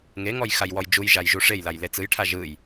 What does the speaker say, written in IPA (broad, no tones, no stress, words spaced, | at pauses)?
ŋeŋɔj xajwɔjd͡ʒujʒaj ʒuʂejlaj let͡sɯjʈʰa ʒɯj